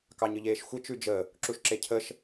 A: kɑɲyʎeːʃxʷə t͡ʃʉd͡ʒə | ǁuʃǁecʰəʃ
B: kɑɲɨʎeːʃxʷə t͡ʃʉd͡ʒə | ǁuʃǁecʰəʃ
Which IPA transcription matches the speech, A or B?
B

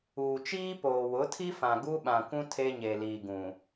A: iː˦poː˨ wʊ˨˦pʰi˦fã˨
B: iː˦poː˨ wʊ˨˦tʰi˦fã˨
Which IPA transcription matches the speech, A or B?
B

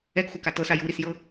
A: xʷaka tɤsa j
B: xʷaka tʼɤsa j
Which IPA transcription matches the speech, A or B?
A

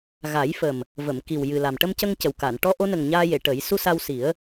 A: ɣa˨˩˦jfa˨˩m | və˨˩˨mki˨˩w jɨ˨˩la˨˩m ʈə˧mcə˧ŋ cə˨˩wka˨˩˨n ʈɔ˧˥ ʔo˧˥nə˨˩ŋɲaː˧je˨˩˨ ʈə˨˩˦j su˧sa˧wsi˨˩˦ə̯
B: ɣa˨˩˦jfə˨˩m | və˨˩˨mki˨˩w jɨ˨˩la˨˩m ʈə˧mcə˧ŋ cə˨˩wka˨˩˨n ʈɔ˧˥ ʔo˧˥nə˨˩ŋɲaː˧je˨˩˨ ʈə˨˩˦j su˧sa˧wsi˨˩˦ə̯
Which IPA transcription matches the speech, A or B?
B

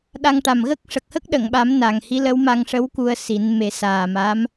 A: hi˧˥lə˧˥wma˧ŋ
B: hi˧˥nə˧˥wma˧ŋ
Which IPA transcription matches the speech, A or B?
A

